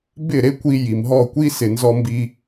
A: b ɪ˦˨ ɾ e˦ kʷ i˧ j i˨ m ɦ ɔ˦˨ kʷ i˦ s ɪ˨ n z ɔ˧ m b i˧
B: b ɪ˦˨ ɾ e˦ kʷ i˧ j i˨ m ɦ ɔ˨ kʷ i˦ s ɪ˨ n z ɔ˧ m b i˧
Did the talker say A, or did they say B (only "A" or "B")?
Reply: A